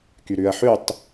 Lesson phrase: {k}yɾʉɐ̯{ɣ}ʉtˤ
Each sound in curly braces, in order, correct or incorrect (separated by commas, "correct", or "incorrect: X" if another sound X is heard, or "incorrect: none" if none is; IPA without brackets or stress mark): correct, incorrect: ħ